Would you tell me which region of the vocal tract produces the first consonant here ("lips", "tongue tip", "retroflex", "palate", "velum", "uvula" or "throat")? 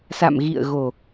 tongue tip